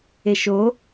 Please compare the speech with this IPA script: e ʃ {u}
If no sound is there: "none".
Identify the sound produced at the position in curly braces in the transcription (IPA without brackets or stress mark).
o